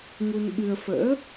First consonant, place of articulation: velar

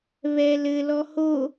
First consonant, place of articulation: labial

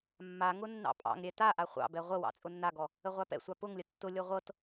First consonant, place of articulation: labial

